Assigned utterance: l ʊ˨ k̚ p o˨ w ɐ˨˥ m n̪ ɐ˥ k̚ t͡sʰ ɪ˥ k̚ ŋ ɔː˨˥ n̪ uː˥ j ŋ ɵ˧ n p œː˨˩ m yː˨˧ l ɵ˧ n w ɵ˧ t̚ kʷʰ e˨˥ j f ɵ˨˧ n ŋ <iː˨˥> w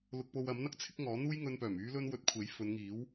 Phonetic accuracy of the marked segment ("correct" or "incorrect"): correct